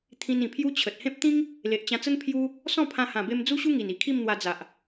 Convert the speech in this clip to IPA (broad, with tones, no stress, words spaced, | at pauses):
t̪ʰĩ˧nĩ˨˩pʰju˦t͡ɕʰə˨t̚ hẽ˦p̚t̪ĩ˦ŋ | le˨ʔt͡ɕã˧t͡sə˦n pʰju˦ | sɔ̃˥˧pʰã˧ hã˨˩be˧m d͡zu˦ɕu˦ ŋi˨˩ni˨˩kʰi˥˧m n̪wa˧d͡za˨ʔ